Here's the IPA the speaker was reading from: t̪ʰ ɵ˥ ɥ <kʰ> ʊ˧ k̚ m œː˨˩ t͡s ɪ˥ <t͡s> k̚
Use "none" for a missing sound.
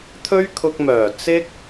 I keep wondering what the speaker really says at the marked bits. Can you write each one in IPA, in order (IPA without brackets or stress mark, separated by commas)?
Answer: kʰ, none